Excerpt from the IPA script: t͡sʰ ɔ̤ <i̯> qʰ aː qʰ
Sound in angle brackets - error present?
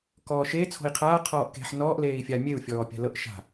no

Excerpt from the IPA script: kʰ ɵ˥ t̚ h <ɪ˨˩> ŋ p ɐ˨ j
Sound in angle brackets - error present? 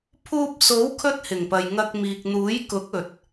no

